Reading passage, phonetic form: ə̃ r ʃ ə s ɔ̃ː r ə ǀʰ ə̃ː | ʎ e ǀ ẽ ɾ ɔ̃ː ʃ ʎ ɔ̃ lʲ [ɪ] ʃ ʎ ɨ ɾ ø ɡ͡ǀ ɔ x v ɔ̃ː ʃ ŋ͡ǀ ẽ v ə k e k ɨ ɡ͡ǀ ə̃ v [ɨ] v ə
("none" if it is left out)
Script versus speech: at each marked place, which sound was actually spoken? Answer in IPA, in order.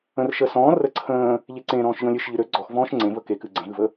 ɨ, ɨ

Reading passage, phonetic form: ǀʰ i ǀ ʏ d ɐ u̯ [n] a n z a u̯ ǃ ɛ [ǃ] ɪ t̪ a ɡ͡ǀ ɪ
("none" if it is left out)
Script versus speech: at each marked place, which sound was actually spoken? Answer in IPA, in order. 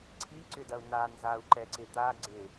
n, ǀ

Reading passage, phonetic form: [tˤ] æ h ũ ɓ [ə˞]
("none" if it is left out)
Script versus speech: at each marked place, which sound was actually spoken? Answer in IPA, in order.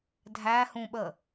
dʱ, ə

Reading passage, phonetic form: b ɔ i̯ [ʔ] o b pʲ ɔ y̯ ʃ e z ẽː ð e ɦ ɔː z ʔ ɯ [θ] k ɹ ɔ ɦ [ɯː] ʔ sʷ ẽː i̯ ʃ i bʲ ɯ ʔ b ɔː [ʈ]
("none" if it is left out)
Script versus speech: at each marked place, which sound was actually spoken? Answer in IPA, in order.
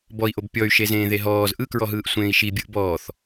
ʔ, none, ɯː, θ

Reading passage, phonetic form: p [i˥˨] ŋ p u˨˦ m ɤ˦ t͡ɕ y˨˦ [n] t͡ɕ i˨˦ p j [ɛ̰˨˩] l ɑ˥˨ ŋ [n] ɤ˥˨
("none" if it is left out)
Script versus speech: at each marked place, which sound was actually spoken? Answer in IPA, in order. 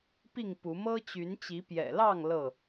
i˥˨, n, ɛ̰˨˩, l

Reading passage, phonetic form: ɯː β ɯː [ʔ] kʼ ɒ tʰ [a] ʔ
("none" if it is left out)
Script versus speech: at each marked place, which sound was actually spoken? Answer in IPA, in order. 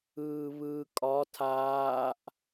none, aː

